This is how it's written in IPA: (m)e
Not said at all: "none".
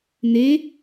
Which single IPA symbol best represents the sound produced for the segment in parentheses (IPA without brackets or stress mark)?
n